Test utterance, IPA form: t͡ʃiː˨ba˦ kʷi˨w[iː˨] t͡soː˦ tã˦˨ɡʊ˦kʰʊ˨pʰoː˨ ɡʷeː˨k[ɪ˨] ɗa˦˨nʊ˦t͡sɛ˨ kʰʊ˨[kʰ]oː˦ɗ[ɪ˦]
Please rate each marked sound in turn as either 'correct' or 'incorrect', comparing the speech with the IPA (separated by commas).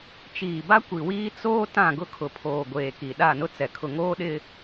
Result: incorrect, incorrect, incorrect, correct